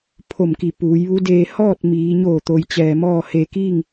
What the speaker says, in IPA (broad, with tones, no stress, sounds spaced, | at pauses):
pʰ o˧˩ m k i˧˩ p uː˩˧ j ʋ u˧˥ d eː˧ h ɔː˥˨ t̚ m iː˩˧ ɲ oː˧˩ t̪ o˩ j t͡ɕ ɛː˩ m ɔː˥˨ h e˧ k iː˥˨ ŋ